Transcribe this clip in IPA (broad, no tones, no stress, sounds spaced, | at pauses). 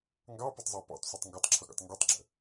ŋ ɡ ɑ p ɪ tˤ zˤ ɑ p ɔ̰ tˤ sʷ i tˤ ŋ ɡ ɒ tˤ ǁʰ ʊ ɡ ɔ̰ tˤ ŋ ɡ i tˤ ɡ͡ǁ ə̰